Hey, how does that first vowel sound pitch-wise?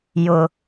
high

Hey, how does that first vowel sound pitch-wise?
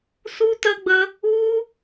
high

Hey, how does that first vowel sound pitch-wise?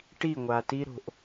falling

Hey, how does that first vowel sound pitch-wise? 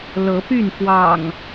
rising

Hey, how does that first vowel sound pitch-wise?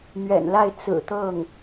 low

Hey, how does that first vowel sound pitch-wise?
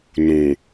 low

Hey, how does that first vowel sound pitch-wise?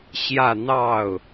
falling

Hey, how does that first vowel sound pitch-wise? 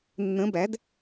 rising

